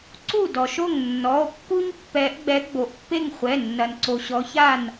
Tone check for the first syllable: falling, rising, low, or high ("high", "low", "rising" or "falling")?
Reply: falling